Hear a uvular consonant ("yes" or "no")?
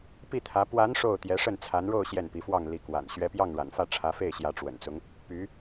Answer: no